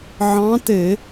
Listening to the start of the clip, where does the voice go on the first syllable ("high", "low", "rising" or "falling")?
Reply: rising